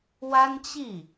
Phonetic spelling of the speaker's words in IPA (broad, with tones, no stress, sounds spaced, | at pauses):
w a˥ n t͡ɕ i˥˩